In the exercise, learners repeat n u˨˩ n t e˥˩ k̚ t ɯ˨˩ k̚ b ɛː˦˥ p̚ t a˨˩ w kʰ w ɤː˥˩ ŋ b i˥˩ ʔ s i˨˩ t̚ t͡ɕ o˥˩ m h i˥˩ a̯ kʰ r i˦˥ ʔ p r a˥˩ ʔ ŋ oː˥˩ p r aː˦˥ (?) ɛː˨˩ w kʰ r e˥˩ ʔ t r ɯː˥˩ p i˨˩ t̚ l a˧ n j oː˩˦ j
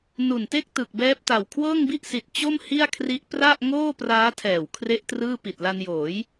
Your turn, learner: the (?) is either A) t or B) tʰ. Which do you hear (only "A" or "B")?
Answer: B